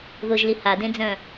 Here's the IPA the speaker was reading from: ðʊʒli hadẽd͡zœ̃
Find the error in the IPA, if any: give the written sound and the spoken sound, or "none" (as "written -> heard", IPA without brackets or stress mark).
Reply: none